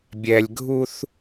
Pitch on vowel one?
low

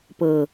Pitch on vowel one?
low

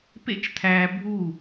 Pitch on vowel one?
falling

